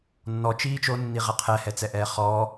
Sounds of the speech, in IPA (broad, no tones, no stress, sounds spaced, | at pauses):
nː ɔ t͡ʃ iː t͡ʃ o nː i ʁ ɛ qʰ ɛ h ɛ t͡s ɛ ʔ ɛː χ ɔ